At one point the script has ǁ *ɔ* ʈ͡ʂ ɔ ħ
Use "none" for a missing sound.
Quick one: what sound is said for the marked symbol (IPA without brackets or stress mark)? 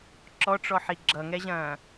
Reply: ɔ